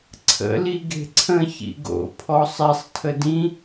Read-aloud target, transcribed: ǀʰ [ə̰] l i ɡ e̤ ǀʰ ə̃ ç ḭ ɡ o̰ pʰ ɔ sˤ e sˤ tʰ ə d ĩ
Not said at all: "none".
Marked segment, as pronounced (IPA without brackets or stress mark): ə̰